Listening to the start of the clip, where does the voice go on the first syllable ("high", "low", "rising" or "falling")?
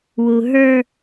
low